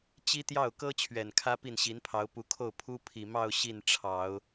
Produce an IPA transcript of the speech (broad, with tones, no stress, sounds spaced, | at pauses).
t͡ɕ i˥ t̪ j ɑ˥˩ ʊ̯ k ɤ˥ t͡ɕʰ ɥ ɛ˨˩ n kʰ ä˥ p i˥˩ n ɕ i˧˥ n pʰ ɑ˧˥ ʊ̯ p u˧˥ kʰ o˥˩ ʊ̯ pʰ u˥ pʰ i˨˩ m ɑ˥˧ ʊ̯ ɕ i˥˩ n ʈ͡ʂʰ ɑ˨˩˦ ʊ̯